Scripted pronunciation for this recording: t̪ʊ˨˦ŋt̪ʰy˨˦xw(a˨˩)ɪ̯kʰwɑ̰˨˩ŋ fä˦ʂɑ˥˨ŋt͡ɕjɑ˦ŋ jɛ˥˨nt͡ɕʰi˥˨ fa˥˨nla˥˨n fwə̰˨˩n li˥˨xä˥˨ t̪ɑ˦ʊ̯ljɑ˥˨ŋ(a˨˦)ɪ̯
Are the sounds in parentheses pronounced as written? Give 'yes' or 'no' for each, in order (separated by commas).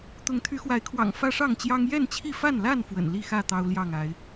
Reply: no, yes